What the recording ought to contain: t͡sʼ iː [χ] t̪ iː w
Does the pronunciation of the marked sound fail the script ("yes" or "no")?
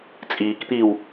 yes